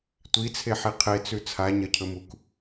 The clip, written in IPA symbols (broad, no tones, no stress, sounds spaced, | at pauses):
tʷ i t͡sʰ e ħ i qʰ e t͡s ʉ t͡sʰ a ɲ ɐ cʰ ɵ m u k